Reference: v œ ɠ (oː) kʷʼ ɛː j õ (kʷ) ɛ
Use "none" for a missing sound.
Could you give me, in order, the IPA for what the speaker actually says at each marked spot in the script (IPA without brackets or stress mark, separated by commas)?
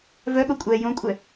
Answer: o, kʷʼ